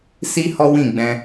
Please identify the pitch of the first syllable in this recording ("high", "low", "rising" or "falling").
high